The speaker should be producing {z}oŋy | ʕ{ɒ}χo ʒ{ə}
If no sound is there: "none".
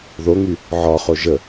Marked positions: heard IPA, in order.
ð, ɒ, ə

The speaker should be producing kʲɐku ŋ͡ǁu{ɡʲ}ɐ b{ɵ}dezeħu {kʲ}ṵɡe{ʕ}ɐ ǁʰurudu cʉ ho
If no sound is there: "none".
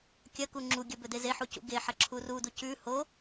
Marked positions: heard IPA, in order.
ɡʲ, ɵ, c, ħ

